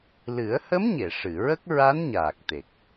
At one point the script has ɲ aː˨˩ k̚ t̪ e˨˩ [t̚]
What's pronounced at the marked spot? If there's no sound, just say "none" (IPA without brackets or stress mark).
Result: k̚